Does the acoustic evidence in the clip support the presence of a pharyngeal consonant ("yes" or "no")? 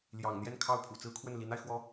no